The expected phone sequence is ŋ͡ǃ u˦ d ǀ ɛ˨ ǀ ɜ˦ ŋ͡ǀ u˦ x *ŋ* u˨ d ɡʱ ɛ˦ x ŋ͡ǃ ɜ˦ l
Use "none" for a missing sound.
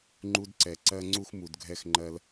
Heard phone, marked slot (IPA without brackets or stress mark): m